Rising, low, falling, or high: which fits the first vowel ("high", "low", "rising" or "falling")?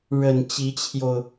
low